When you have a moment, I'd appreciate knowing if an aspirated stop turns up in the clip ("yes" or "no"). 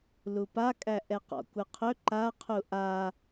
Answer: yes